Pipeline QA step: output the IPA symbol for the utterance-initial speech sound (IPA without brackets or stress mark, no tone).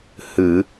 h